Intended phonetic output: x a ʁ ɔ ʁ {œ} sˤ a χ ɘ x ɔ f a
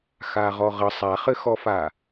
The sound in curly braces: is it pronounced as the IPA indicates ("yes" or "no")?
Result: no